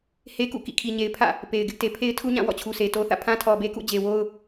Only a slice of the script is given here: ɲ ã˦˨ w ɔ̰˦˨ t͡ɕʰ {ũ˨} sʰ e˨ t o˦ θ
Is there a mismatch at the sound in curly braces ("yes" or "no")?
yes